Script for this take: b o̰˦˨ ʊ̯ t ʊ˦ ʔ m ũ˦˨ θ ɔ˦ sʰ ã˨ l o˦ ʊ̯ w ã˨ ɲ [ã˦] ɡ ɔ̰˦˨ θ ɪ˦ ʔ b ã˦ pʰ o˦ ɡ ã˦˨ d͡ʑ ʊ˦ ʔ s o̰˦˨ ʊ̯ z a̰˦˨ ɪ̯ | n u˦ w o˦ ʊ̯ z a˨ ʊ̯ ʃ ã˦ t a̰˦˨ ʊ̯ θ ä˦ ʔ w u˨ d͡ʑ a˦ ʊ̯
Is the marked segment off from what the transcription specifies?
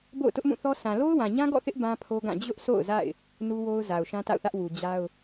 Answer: no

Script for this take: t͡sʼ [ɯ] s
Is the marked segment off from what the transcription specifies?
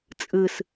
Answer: no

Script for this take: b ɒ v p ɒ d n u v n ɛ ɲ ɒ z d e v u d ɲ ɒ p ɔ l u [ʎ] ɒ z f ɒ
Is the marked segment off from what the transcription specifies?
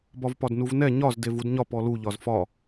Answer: no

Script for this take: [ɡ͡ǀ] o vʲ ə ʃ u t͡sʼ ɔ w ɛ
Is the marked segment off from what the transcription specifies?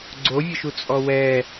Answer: no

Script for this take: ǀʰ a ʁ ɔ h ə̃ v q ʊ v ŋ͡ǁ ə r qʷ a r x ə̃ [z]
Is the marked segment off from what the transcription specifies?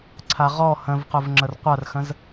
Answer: no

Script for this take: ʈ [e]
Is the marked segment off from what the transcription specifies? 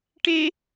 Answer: no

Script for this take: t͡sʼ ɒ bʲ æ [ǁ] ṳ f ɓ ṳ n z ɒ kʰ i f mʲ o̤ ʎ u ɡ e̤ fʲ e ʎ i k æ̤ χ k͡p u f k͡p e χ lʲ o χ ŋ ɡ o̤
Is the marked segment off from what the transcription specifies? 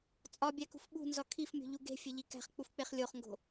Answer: yes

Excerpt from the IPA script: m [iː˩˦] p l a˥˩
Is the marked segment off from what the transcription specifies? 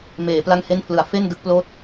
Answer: yes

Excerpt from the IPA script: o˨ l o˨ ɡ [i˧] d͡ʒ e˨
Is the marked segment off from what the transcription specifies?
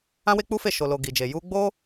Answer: yes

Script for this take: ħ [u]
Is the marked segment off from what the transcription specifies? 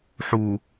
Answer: no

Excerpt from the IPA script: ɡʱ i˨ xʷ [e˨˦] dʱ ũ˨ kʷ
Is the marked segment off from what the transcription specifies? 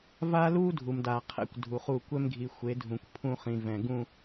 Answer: no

